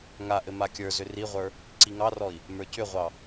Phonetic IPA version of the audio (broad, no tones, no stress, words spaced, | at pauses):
ŋaʔɘ makʲə˞zʏ riʁʷə˞ | ǀiŋɑrɔi̯ | mə˞cʏʁʷɑ